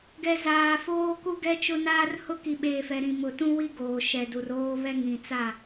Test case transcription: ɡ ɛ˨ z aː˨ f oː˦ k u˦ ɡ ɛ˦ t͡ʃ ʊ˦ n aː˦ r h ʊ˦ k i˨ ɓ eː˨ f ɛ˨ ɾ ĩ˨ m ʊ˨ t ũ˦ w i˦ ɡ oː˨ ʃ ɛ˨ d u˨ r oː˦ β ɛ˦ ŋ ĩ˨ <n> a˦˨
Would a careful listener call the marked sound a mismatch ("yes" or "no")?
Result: yes